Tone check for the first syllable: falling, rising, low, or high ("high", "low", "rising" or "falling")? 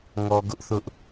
low